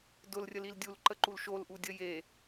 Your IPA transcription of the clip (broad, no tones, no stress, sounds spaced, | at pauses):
d ʊ l rʲ ə l i l dʲ u l ǃ ə ǃ u l ʃ o l ʔ u dʲ ə j e